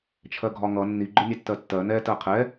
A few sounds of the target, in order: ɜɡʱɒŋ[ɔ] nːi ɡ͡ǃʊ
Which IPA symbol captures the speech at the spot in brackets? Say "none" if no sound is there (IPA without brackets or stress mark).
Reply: ʌ